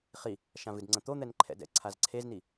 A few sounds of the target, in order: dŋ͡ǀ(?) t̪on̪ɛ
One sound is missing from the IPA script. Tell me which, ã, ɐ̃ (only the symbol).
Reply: ɐ̃